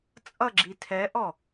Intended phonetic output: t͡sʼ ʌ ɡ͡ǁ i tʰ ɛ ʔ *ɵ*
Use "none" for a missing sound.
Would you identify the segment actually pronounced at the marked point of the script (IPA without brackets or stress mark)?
ɔ